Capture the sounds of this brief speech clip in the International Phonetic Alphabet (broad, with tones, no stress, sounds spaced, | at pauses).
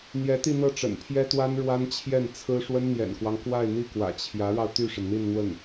n̪ j ɛ˧˥ t̪ i˥˧ n̪ ɤ˥˩ ʈ͡ʂ ə̰˨˩ n pʰ j ɛ˥ t̪ w a˥ n ɻ w a˥ n t͡ɕʰ j ɛ˥˩ n t͡sʰ ɹ̩˥ ʂ w ə˥ n n̪ j ɛ̰˨˩ n k w ɑ˦ ŋ k w a˥˧ ɪ̯ n̪ i˥˩ k w ä̰˨˩ t͡ɕʰ j ä˧˥ ɻ ɑ˧ ʊ̯ t̪ y˥˩ ʂ ə˩ n n̪ i˥˧ n n̪ w ə˥˩ n